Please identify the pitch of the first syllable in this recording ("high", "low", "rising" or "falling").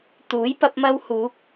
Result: rising